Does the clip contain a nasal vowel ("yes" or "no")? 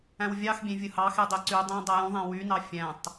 yes